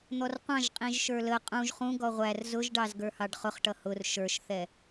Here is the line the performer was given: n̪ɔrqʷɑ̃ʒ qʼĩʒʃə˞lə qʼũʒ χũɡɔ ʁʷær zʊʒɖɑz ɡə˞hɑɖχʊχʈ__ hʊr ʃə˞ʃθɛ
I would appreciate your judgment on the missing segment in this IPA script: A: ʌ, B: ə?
A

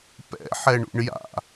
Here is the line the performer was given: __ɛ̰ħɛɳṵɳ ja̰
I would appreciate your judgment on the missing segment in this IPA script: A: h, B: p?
B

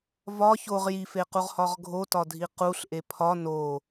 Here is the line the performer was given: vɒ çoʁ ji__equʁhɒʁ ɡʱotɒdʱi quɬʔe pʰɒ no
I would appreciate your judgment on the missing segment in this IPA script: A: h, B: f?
B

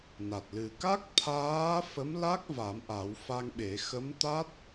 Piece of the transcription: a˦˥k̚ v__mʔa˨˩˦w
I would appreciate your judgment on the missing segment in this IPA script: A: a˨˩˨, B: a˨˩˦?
B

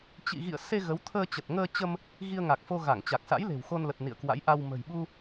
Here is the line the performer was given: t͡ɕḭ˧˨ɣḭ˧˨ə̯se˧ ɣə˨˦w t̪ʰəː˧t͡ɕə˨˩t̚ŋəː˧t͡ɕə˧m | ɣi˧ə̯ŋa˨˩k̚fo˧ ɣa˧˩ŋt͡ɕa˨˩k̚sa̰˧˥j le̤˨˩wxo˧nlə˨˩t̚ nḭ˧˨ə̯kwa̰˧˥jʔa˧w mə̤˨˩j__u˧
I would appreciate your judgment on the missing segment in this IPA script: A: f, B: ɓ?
B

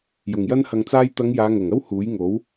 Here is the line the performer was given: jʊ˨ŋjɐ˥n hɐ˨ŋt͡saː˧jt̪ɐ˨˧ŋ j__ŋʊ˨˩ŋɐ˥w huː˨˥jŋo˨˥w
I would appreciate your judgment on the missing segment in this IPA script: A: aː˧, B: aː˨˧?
B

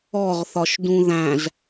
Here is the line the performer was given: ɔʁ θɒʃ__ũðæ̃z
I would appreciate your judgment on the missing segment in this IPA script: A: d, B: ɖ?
A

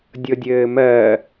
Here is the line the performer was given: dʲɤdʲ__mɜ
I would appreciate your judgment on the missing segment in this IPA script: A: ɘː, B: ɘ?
A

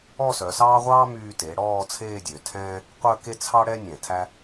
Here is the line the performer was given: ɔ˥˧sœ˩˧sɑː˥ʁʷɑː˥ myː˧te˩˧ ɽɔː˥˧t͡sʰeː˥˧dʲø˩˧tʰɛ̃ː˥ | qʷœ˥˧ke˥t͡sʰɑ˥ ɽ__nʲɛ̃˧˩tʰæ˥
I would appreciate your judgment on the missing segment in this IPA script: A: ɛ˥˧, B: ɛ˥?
B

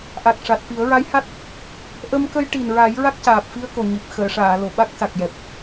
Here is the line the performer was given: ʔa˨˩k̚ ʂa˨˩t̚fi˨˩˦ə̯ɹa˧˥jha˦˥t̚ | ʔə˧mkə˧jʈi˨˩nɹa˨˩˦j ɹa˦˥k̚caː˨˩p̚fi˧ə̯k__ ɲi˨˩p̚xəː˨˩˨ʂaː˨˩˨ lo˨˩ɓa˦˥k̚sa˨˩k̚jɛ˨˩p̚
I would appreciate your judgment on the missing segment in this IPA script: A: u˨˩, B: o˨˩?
B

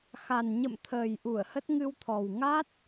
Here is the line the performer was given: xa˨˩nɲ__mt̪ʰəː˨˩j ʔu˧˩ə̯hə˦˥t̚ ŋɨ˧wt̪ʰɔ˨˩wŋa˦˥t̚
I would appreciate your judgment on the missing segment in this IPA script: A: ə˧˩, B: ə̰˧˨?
B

